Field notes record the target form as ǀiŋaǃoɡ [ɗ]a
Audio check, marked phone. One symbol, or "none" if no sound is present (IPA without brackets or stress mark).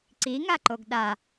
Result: ɗ